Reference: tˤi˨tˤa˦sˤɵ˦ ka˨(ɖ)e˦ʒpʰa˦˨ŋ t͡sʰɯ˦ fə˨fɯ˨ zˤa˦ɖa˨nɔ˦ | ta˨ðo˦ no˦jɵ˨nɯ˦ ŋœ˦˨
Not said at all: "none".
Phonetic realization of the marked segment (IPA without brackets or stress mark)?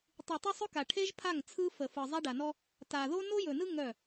ʈʰ